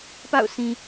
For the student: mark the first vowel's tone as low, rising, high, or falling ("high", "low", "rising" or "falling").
falling